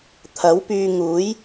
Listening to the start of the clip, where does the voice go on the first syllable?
rising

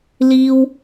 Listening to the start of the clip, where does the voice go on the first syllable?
high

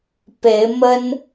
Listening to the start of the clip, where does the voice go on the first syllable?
rising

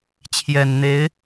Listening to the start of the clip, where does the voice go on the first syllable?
low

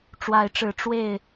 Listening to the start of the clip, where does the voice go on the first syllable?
rising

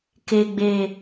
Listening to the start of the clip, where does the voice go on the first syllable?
low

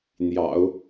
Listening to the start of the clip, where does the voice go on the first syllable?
low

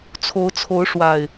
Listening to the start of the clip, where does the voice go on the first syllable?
rising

